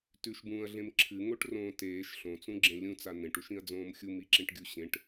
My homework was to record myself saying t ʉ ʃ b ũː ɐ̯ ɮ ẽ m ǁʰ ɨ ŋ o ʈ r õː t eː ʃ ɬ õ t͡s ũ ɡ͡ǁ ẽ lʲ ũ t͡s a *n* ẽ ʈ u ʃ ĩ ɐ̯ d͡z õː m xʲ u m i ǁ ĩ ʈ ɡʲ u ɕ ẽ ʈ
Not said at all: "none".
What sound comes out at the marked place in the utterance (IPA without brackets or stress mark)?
n